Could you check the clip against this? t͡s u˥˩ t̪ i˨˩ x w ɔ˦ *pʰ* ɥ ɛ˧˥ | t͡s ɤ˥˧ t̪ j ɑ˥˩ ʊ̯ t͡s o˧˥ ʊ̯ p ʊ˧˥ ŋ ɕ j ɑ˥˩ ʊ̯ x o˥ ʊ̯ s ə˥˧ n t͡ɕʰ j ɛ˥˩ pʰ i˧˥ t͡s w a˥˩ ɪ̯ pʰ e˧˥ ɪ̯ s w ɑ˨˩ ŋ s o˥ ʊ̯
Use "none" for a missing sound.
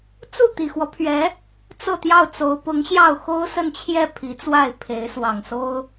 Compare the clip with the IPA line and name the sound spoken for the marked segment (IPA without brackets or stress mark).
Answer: pʰ